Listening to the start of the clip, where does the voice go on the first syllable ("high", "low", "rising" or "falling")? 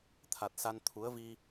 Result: low